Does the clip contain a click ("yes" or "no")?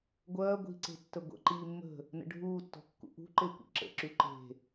yes